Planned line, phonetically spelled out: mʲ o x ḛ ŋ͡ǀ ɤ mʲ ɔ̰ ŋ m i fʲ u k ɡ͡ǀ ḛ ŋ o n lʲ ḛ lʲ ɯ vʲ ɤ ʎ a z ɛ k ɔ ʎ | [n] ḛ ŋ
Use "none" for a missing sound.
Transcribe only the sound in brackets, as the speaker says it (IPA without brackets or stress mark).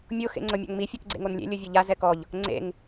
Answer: ŋ͡ǀ